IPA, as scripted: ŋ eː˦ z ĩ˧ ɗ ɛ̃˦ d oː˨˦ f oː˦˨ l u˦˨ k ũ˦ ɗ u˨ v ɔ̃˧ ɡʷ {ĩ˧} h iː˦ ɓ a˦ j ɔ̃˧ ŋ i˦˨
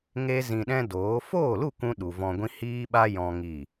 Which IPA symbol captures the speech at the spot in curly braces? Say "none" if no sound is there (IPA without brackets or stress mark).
ĩ˦